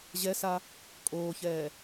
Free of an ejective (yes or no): no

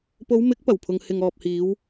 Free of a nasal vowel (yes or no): yes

